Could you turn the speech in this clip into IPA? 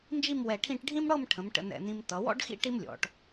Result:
nd͡ʒi˥˧mwɛ˧˩ʈʰĩ˥˧ʈ ɖʱĩ˥m ɽɤ˥˧mʈʰə̃˩˧m ʈə̰˧nɛ̰˧˩nĩ˧m tʌ˩˧wɔ̰˥ɖxḭ˥ ʈi˥mlʲɔ̰˩˧ʈ

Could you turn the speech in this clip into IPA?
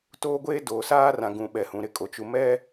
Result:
toː˦ɡʷeː˦ doː˨saː˦ rã˨ɡũ˨ ɓɛ˨hũ˨ ɾɪ˦kʼo˨ t͡ʃu˨ mɛ˦

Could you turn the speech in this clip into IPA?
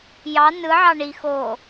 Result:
jɑ nɯʕɑ ɳi xo

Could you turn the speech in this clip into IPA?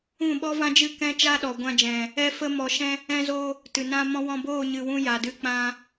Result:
ũ˦˨ɓɔ˦vã˦d͡ʒɨ˦˨ kɛ̃˦t͡ʃa˦ ɗɔ˨ ɡʷã˧d͡ʒɛ̃˨ | ɛ˦fə˦ mɔ˧ʃɛ̃˦ | ɛ̃˧zo˧ | tɨ˨ nã˧ mɔ̃˦ wɔ̃˧boː˦˨ ɲɨ˨wũ˧ ja˨dɨ˧k͡pã˧

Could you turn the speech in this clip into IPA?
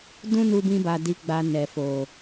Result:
dũ˦nu˧bĩ˧ba˨ di˧ɡ͡ba˧ nɛ˨fo˨

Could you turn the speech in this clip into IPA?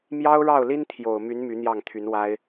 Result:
mjɑ˥ʊ̯ɻɑ˥˩ʊ̯li˥n t̪ʰjo˨˩ʊ̯my˧˥n my˧˥n̪jɑ˥˩ŋt̪ʰy˧˥nwa˥ɪ̯

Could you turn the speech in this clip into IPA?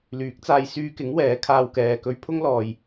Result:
lyː˨˥k̚t͡saː˧j syː˧kɪ˨˥ŋ wɛː˨˥kʰaː˧wkɛː˨ kɵ˧ɥ pʰʊ˥ŋlɔː˨j

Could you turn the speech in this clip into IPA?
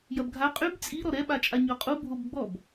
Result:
jɐbɡʱa qʼyb t͡sʼi ɾɔɾɛɓat͡ʃʼa ɲɔqʼu bʱobɡ͡bɔb

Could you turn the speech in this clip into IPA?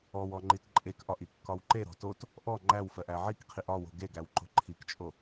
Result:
ɔwɔ ŋ͡ǃitǃʼekʔɒʔ ikːɒwǃeɾɔ̤ tot | ʔɔ ŋ͡ǃæwfɜʔ æʕikqʰiʔ ɒwo̤ ɡeɡæw ǃo̤ǃʰikt͡ʃʼo

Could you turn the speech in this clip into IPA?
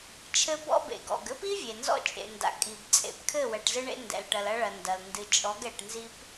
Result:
t͡ʃʰɘ˦bɔ̰˦bḛ˨ ɡɔ̰˨ɡ ɘ˦pi˦ vʲe˨nzɔ̰˦t͡ʃʼḛ˨nda̰˨ kʼi˨b t͡sʼḛ˨pkʰɘ˦˨ wɛ˨ʈzɨ˦ɳḛ˦ ndɛ̰˨lʈɐ˨lɐ˦ɭɐ˨ ndɐ˨l ndɨ˨t͡ʃʼɔ˨˦ɡ ɛ˨ʈnzi˦p

